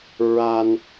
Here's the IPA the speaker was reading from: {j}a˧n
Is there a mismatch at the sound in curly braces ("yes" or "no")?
yes